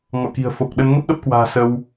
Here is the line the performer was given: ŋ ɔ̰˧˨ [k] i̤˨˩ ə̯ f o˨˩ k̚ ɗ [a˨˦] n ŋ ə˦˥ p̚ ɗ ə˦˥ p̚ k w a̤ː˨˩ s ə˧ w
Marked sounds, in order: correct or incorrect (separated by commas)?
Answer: correct, incorrect